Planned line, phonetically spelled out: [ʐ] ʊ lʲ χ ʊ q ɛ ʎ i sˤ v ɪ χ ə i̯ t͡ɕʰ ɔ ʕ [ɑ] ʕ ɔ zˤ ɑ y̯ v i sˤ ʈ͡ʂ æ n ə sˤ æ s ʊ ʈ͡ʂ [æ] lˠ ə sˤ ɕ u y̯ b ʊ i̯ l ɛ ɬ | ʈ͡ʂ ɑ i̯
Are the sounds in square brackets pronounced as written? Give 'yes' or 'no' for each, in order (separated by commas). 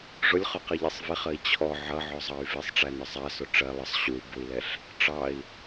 yes, no, no